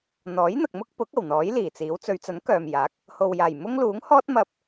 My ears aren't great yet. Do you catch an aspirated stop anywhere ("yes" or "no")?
no